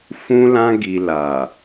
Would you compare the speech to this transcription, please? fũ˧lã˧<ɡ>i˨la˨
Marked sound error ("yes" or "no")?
no